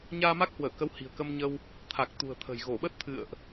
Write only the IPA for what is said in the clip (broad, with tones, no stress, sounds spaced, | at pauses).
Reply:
ɲ aː˧ m a˦˥ k̚ h w əː˧˩ k ə˨˦ w h i̤˨˩ ə̯ k ə˧ m ɲ ə˧ w | t̪ʰ a˨˩ k̚ t̪ ṳ˨˩ ə̯ t̪ʰ ə̤˨˩ j ɣ o˧˩ ɓ ə˦˥ t̚ t̪ʰ ɨ̰˧˨ ə̯ ʔ